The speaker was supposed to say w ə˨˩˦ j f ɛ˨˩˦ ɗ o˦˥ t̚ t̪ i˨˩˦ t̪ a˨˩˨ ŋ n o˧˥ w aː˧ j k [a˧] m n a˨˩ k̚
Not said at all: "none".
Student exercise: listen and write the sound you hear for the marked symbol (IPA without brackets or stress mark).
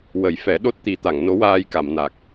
a˨˩˨